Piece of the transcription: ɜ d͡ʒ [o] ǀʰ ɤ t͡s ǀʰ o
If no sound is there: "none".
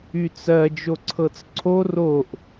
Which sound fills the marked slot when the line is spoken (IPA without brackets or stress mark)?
o